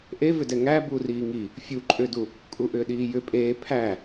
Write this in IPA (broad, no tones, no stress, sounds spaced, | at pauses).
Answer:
ʔ e v ʏ d ɛ ŋ æ b u r iː ŋ i | fʲ u ǃʼ ʏː d u | kʼ u ʔ ʏː ɗ iː j ʏ pʼ eː pʰ æ